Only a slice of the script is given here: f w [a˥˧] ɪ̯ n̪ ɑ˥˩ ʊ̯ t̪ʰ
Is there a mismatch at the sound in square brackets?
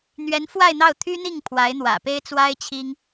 no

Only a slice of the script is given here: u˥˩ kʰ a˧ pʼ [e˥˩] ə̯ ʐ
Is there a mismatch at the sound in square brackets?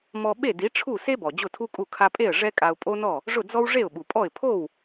no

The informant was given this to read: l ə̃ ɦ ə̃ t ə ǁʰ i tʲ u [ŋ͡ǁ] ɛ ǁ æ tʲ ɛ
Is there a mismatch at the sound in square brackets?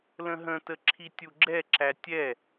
yes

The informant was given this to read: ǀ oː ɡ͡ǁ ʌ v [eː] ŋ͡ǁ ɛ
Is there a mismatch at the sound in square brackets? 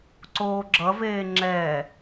no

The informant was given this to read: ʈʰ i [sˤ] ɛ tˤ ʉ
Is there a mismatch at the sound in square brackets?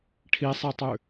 no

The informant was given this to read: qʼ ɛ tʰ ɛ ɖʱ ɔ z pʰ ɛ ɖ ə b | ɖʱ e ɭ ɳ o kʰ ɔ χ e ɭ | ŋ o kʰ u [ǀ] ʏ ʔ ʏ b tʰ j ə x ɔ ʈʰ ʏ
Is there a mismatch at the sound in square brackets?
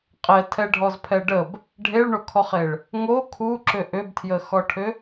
yes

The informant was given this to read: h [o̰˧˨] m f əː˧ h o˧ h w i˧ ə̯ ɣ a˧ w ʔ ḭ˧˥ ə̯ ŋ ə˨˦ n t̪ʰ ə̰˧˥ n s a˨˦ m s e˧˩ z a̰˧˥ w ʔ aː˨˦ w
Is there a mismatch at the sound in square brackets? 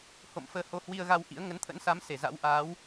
no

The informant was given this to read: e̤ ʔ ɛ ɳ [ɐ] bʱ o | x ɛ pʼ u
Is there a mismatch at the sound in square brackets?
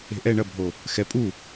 no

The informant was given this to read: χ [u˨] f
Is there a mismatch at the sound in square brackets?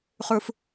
no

